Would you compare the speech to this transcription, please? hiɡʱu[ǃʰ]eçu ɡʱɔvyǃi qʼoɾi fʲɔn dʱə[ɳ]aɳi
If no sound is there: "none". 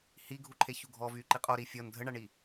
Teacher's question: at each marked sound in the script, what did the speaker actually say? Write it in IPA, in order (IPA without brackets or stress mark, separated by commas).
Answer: ǃʰ, ɳ